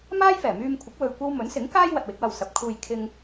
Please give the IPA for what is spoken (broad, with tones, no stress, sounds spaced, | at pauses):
m aː˥ j f ɛː˨˩ m yː˧ m kʷʰ ɪ˨˥ k̚ w ɵ˧ ɥ kʷ ɐ˥ w m ɵ˨˥ n s ɪ˨˥ ŋ k aː˥ j w ɐ˧ t̚ w ɪ˨˥ k̚ w ɐ˧ w s ɐ˨ p̚ kʰ uː˧ j kʰ ɪ˥ ŋ